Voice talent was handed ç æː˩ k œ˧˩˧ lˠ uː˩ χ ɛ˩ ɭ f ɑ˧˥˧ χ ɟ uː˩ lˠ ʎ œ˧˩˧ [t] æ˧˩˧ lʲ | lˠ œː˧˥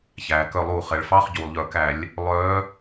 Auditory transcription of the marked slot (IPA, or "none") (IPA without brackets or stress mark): k